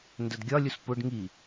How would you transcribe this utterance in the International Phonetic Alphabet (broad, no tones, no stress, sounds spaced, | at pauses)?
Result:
n d ə d ɡʲ ɒ lʲ u s p ʊ ɖ ŋ i